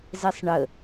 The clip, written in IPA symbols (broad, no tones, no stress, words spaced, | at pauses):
zɛsˤɳə